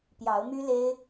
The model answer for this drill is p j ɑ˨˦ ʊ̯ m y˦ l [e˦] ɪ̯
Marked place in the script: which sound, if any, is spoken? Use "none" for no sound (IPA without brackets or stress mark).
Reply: e˦